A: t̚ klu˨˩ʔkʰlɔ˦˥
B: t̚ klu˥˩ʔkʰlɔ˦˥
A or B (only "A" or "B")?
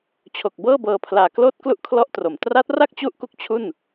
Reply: B